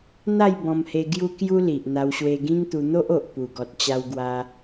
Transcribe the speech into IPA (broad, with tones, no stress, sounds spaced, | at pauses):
n̪ a˥˧ j b ɔ̃˧ m h e˧ ɡ j u˦ k j u˦ l i˨ ʔ n̪ a˧ w ɕ w e˧ ɡ ĩ˦ ŋ t̪ u˧ n̪ o˦ ʔ o˨ ʔ p u˨˩ ɡ ɔ˨ t̚ t͡ɕ a˧ w ɡ w a˧